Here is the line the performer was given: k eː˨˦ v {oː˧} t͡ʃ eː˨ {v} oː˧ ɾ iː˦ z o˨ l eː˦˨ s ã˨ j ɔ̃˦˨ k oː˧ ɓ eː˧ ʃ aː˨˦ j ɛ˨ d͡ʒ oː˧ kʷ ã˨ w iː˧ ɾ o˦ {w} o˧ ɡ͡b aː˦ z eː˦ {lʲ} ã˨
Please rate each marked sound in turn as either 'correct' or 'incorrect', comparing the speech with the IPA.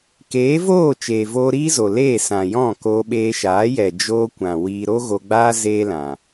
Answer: incorrect: oː˦˨, correct, incorrect: ɣ, incorrect: l

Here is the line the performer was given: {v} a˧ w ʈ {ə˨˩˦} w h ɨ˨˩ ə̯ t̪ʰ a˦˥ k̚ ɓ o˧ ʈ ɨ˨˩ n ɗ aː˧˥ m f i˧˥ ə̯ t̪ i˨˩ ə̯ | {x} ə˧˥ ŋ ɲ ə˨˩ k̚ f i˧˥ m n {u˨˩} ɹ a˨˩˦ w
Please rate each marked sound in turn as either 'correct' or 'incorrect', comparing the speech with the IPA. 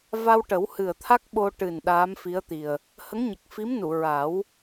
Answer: correct, correct, incorrect: h, incorrect: u˨˩˨

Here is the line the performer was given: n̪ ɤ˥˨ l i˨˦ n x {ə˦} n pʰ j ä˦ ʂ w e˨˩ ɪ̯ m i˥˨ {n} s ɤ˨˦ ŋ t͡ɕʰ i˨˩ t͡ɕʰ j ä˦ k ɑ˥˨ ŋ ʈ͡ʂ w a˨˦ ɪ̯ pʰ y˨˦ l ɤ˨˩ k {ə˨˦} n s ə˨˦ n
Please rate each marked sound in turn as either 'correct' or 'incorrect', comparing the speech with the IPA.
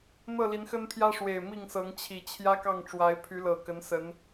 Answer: correct, incorrect: ŋ, correct

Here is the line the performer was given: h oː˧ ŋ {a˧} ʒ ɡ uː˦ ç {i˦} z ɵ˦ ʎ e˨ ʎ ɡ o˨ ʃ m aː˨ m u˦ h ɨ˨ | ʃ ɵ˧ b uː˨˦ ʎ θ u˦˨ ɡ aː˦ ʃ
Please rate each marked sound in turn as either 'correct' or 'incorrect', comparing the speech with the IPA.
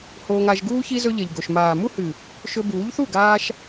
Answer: correct, correct

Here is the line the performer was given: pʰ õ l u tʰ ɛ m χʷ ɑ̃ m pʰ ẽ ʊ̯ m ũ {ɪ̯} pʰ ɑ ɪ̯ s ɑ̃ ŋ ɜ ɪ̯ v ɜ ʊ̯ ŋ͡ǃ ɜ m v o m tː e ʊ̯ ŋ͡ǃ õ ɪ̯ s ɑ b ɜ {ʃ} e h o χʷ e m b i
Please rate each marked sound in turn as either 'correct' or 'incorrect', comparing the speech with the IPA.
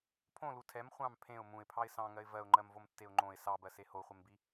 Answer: correct, incorrect: s

